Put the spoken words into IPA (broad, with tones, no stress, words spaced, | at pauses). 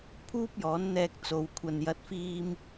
pʰuː˥p̚jɔː˨˥nn̪ɛː˧k̚t͡so˨w kʷʰɐ˨njɐ˨˥t̚fiː˧m